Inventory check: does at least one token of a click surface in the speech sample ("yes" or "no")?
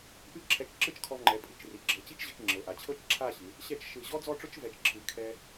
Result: yes